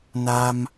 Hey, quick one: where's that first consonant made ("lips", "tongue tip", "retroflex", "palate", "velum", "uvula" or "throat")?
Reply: tongue tip